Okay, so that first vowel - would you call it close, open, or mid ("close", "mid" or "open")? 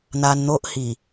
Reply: open